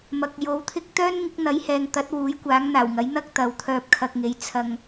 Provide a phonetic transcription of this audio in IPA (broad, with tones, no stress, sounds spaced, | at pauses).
m ɐ˨ k̚ j o˨˥ w t̪ʰ ɪ˥ k̚ t̪ œː˥ n ŋ ɪ˨˥ k̚ n̪ ɐ˨˥ j h ɛː˨ ŋ t̪ ɐ˨˥ t̚ w uː˨˥ j kʷ aː˨˥ ŋ n̪ aː˨˩ w ŋ ɐ˨˥ j n̪ ɐ˥ k̚ t̪ ɐ˨ w t̪ʰ œː˧ p̚ kʰ ɐ˧ k̚ ŋ e˨˥ j t͡sʰ ɐ˨ ŋ